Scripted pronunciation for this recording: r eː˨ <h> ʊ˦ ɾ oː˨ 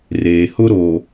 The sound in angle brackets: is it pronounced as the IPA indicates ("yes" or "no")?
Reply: yes